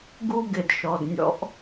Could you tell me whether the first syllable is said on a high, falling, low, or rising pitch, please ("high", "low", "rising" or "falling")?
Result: high